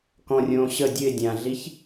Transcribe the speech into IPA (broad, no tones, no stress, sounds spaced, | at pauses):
k ɔ̃ rʲ õː ɕ ə dʲ ɨ ɪ̯ dʲ ã ɮ i ç